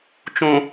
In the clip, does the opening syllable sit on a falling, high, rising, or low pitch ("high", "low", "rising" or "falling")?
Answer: low